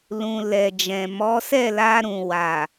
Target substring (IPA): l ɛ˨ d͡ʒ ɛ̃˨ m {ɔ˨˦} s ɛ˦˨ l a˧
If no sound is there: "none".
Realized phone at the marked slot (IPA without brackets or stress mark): ɔ˨˦